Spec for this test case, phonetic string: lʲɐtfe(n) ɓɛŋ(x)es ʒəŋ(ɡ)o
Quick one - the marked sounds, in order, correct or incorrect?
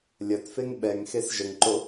incorrect, correct, incorrect

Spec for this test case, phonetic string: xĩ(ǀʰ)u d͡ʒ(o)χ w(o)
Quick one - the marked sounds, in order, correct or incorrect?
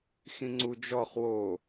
incorrect, incorrect, correct

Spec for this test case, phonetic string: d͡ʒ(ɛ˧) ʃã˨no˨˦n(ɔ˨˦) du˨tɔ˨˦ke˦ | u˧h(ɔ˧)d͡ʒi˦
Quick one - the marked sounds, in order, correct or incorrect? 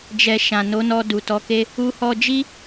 correct, incorrect, correct

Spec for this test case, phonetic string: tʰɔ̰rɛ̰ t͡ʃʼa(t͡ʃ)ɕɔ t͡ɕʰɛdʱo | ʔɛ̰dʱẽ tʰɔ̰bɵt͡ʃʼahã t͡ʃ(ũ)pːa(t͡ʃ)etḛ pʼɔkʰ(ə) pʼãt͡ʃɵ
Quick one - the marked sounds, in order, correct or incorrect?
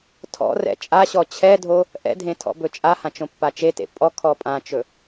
incorrect, incorrect, correct, incorrect

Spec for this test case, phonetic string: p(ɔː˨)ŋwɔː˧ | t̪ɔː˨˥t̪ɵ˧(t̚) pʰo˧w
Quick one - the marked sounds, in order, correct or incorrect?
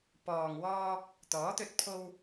correct, correct

